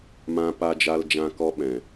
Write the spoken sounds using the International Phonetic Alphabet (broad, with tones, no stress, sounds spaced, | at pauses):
m ã˧ p a˧ d͡ʒ a˧ l d͡ʒ ã˧ k ɔ˦ ɓ ɛ̃˨